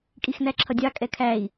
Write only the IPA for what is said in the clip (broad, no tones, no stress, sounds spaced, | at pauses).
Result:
kʼ i x n æ ǁʰ ʌ dʲ ɑ kʼ ɛ kʰ æ i̯